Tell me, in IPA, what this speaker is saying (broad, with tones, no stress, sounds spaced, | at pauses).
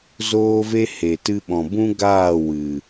z oː˦ v e˦ h e˨ t ɨ˧ ɓ ɔ̃˨ b ũ˦ ɡ aː˦˨ w ɨ˨